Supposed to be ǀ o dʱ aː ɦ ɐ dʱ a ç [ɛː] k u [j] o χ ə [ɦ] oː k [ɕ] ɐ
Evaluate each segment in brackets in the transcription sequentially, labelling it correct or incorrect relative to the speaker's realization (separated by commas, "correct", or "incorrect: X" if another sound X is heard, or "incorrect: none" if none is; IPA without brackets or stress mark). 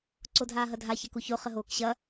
incorrect: ɛ, incorrect: ç, correct, correct